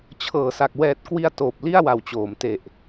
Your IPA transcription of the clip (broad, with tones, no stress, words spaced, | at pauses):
t͡ɕʰɤː˩˦sa˨˩k̚ wɛː˨˩t̚kwi˧a̯ toː˨˩p̚li˥˩a̯wa˨˩wt͡ɕoː˩˦m te˨˩ʔ